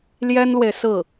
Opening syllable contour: high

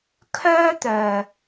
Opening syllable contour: high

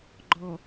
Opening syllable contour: low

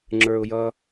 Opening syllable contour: low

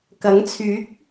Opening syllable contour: rising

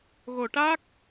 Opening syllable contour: low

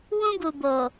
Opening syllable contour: high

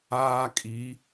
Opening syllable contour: high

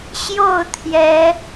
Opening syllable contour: falling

